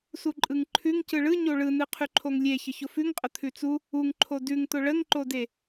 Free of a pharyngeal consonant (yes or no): yes